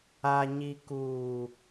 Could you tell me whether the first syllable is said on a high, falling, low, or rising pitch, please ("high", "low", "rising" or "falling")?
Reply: low